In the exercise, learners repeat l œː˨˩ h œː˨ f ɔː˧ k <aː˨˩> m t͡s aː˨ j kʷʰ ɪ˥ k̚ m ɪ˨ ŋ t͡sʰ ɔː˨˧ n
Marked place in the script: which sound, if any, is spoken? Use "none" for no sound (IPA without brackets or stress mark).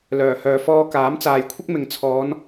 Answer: aː˨˥